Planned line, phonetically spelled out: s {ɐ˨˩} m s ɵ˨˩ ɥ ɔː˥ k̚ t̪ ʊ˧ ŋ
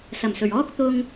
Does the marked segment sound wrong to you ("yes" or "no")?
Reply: no